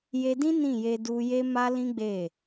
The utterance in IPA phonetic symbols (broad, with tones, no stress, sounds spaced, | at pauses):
j e˧ d ĩ˦ n ĩ˦˨ j e˧ d u˧ j e˦ m a˦ l ĩ˦ ɡ͡b e˦˨